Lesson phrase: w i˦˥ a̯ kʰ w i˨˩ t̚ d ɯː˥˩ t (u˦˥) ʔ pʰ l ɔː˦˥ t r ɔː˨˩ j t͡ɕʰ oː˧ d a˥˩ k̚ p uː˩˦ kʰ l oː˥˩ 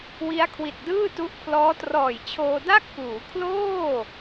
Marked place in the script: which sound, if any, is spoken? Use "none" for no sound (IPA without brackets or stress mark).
u˦˥